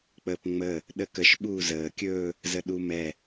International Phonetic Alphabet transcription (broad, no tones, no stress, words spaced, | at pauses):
k͡pəːpŋ͡məː | ɗəkəʃ ɓuːzəː kʲɵː | zəɗumɛ